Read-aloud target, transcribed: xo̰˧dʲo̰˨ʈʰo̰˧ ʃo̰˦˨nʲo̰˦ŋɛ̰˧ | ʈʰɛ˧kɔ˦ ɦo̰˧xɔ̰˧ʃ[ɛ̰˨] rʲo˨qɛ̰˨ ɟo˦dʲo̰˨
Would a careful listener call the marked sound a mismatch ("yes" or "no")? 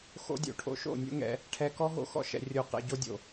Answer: no